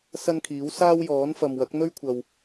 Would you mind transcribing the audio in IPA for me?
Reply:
s ɐ˥ n kʰ iː˨˥ w s aː˥ w j ɔː˨˥ n f ɐ˨ m w ɐ˨˥ k̚ n̪ ɵ˥ ɥ kʷʰ ɐ˨ w

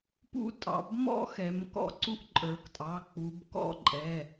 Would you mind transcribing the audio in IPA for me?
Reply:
p ṵ˦ tʼ ɑ̰˩˧ b m ɔ̰˦ x ɛ˩˧ m k ɔ̰˥˩ ǀ u˦ ʔ ǃʼ ə˞˩˧ k tʼ ɑ˩˧˩ k͡p u˩˧ b k ɔ̰˥˩ ǃʼ ɛ˩˧˩

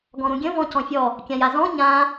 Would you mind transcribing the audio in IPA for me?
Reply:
ɡ ɔ̃ ɾ ũ ɡʲ ə̃ v ɔ̃ c ɔ̃ fʲ ɔ | kʲ ã j a z ɔ̃ ɲ ã

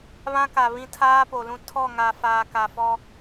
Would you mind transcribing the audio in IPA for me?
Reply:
β ã˦ k a˨ β ĩ˦ tʰ aː˦ p o˨ l ũ˦ tʰ ɔ˦˨ ŋ a˨ f aː˨ k a˨ f ɔ˦

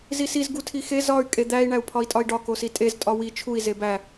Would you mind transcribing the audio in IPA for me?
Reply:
z i s i z ɡ u tʰ i x e z ɒ y̯ kʼ e d̪ æ i̯ ɳ æ u̯ pʰ ɒ i̯ tʼ ɒ i̯ ɖ ɒ k o s i tʼ e z tʼ ɒ w i t͡ʃʰ u i̯ z e b æ

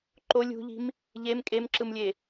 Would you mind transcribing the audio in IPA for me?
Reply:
ǃ o lʲ ṳ ʎ i̤ m | ʎ e m kʼ e m ǁ ɯ m lʲ e

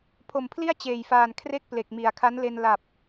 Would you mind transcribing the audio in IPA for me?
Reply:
pʰ o˨˩ m pʰ l i˥˩ a̯ t͡ɕ eː˨˩ j f aː˨˩ n kʰ r e˥˩ k̚ p l e˨˩ k̚ m i˨˩ a̯ kʰ a˦˥ n l e˧ n l a˨˩ p̚

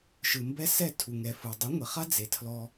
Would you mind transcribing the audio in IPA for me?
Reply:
ʃ ɯ˨ m b ɛ˧ s ɛ˦˨ tʰ u˨ ŋ ɛ˨ f ɯ˨ dˤ u˨˦ ŋʷ e˨ χ a˦ d͡z e˨ tʰ l ɔ˧

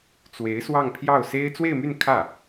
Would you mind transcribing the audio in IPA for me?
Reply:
t͡s w e˧˥ ɪ̯ s w ɑ˥˧ ŋ pʰ j ɑ˥˩ ʊ̯ s e˥ ɪ̯ t͡s w e˥˧ ɪ̯ m y˥˧ n kʰ ä˥˩

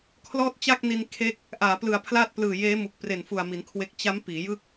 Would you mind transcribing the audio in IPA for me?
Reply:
kʰ l ɔː˥˩ t̚ t͡ɕ a˥˩ k̚ n i˧ n kʰ e˥˩ k̚ | ʔ aː˩˦ p l ɯ˨˩ a̯ pʰ l aː˥˩ t̚ p l ɯː˨˩ j eː˦˥ m u˨˩ k̚ p r e˨˩ n f u˨˩ a̯ m i˩˦ n kʰ w e˦˥ k̚ t͡ɕ a˦˥ m p iː˩˦ j ɯ˥˩ k̚

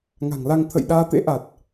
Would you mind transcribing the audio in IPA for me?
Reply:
ŋ a̤˨˩ ŋ l a˧ ŋ t̪ʰ ə̰˧˨ j ɗ aː˧ t̪ ḛ˧˥ ʔ a˨˩ t̚

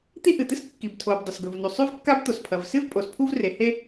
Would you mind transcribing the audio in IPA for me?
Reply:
t̪ i˥ ʔ ɨ˩ t̪ ɨ˥ s kː i˩ b tʰ o˩ b dˤ ɵ˩ s ɡ ɵ˩ v n u˩ sˤ ʉ˥ v kː a˥ b t̪ o˩ s pʰ ɐ˩ v s ɨ˥ v pʼ o˩ s pʰ u˥ v r e˩ h e˥

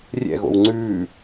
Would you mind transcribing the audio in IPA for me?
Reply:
rʲ ɛ̰ ɣ o̰ w ŋ͡ǀ ʉː

